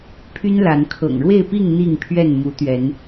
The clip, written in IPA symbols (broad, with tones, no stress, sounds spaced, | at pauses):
pʰ y˦ n l a˨˦ n kʰ ɤ̰˨˩ ŋ ɻ w e˥˨ ɪ̯ p i˥˨ ŋ n̪ i˥˨ ŋ pʰ ɥ ɛ˥˨ n m u˨˦ t̪ ɥ ɛ˨˦ n